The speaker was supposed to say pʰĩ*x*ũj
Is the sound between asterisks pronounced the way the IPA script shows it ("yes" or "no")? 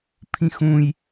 yes